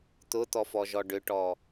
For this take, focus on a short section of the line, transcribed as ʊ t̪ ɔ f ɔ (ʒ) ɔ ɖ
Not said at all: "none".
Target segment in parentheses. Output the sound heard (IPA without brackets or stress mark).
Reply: ʒ